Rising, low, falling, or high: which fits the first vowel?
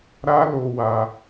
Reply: high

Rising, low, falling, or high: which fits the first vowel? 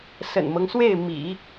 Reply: low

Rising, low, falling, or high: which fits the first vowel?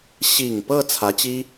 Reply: low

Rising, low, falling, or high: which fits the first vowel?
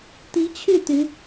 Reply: rising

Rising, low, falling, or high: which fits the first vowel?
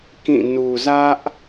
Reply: falling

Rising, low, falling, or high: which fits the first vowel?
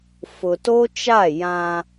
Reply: low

